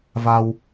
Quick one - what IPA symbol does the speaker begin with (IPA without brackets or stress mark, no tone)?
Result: v